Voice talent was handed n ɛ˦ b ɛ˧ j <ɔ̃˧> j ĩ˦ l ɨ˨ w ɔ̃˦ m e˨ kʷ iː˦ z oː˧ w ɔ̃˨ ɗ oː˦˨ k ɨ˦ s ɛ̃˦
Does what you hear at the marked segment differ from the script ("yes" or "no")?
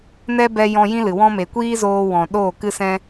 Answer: no